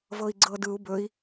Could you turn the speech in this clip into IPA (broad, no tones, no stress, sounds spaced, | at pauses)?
v ɤ i̯ ɡ͡ǀ ɤ d ɯ u̯ b ɵ i̯